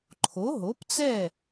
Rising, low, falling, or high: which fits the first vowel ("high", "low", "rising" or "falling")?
rising